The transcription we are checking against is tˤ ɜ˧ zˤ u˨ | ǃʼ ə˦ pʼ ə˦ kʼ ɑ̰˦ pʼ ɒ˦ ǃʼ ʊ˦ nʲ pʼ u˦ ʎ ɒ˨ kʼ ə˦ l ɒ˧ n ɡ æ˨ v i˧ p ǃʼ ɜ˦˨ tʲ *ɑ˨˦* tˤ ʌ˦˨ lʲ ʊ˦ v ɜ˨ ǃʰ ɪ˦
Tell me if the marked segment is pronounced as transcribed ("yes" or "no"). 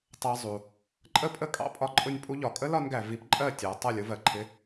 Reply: yes